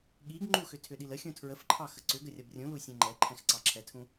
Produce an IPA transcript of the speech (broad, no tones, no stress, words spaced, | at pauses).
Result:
ɠiɡ ŋ͡ǃuxʏ tʰʏɗiləxʲũ tʰɹəfǃʰɑ xəǀʏɡə rʲʌbrʲũlu sʲɛ̃ŋ͡ǃɛǃʰɛ̃x ǀɑǁʰɛtʰũ